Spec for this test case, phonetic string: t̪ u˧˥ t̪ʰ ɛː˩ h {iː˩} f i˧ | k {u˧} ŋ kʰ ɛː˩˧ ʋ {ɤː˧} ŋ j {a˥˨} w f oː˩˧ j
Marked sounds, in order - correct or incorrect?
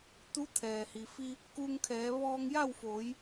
incorrect: i˩, correct, incorrect: ɔː˧, correct

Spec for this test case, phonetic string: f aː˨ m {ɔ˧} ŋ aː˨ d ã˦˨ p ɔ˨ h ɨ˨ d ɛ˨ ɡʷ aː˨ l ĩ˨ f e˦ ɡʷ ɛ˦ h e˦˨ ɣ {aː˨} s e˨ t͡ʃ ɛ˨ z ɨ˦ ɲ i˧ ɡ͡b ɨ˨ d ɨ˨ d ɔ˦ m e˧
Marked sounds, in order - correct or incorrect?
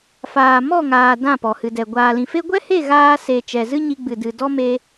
incorrect: ɔ˦˨, incorrect: aː˧

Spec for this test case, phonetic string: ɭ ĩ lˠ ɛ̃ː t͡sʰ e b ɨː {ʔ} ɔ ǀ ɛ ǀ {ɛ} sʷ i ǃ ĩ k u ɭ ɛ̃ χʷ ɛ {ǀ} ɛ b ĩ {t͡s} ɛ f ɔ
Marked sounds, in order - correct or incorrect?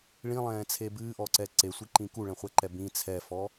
correct, incorrect: e, incorrect: ǃ, incorrect: t͡sʰ

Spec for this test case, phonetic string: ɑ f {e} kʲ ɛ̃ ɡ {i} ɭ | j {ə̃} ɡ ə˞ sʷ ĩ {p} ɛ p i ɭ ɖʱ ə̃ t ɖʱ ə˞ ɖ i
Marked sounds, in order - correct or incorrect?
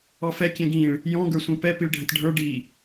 incorrect: ɛ, incorrect: ĩ, incorrect: ɔ̃, correct

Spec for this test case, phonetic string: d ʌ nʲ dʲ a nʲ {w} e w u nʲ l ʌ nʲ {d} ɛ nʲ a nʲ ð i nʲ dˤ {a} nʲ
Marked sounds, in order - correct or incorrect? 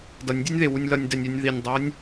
incorrect: ð, correct, incorrect: ʌ

